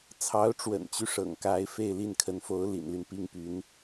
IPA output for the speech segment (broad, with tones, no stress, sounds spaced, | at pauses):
t͡sʰ ɑ˧˥ ʊ̯ ʈ͡ʂ w ə̰˨˩ n t͡ɕ y˦ ʂ ɤ̰˨˩ ŋ k a˧˥ ɪ̯ f e˥˧ ɪ̯ l i˥˩ n kʰ ə˧˥ n f o˧˥ ʊ̯ l ḭ˨˩ n l y˦ n p i˥ ŋ p y˧˥ n